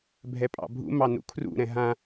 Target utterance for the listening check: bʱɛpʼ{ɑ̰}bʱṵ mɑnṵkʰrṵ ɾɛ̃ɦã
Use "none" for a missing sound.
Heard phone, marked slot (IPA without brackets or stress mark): ɑ̰